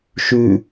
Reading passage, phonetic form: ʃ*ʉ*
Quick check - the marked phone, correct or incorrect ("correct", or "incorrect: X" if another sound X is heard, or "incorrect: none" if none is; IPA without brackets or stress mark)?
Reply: correct